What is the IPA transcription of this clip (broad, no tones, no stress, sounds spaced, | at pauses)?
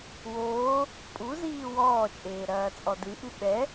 w oː | pʼ u z iː w ɔː t͡ʃʼ eː ɾ ɐː t͡sʼ ɔ d ɨ ʔ ɨ ɓ ɛ